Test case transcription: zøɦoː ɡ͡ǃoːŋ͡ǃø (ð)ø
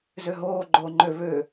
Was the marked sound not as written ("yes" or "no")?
yes